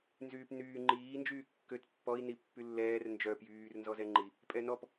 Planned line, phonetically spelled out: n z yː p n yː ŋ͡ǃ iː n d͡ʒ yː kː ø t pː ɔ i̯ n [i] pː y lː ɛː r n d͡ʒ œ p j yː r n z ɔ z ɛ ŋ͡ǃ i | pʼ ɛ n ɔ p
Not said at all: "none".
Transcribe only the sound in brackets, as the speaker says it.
i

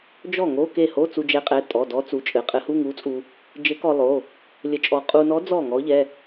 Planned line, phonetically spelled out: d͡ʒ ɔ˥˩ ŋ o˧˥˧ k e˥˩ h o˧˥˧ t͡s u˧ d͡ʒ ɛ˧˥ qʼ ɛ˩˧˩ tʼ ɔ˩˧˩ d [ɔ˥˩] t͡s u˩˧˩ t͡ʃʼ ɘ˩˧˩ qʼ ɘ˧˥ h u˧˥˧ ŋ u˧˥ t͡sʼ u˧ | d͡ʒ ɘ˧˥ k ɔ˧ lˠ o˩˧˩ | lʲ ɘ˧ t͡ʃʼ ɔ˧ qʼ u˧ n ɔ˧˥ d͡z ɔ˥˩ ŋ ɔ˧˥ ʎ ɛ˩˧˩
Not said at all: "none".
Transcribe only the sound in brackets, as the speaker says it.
ɔ˧˥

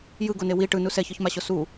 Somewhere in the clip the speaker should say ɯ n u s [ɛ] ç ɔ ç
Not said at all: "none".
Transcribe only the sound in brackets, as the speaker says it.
ɛ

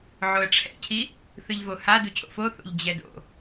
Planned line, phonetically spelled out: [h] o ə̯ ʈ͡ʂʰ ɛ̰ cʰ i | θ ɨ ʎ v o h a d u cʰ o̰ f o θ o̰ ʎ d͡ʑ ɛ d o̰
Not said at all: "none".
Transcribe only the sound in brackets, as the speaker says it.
ʕ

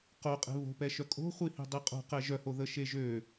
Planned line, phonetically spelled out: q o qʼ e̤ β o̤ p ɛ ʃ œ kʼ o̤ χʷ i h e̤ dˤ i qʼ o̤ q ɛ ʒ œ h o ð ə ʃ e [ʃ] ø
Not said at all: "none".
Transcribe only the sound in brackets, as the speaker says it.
ʒ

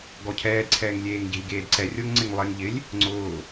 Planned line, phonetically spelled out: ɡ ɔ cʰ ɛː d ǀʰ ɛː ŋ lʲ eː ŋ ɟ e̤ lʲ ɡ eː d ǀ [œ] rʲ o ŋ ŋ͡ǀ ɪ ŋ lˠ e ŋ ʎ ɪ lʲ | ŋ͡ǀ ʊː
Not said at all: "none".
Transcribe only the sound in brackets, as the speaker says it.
ɛ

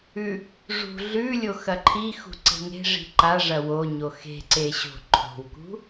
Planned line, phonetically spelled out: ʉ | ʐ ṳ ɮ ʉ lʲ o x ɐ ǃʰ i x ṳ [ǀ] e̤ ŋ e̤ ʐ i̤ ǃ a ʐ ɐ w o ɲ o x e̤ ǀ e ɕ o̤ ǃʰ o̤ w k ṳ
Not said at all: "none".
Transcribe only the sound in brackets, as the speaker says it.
ǀ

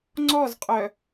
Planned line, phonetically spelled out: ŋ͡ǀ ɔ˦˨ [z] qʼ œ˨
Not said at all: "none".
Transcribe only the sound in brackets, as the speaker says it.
z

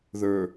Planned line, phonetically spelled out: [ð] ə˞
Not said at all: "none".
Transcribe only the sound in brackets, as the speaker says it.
ð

